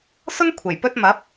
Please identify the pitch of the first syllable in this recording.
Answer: high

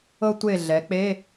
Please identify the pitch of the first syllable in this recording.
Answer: high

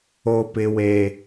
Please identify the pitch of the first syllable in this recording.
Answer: high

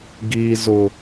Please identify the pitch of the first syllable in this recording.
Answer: low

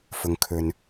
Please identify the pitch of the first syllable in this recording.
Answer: low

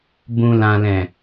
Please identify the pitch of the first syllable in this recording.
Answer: low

